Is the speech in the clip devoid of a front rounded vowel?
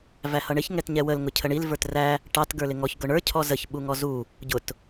yes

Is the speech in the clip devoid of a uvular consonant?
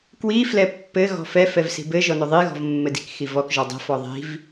yes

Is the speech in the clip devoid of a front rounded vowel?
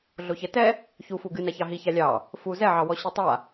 yes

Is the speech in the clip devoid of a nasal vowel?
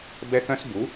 no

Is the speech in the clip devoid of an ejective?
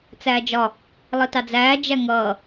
yes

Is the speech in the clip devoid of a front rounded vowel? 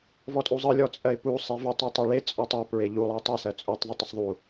yes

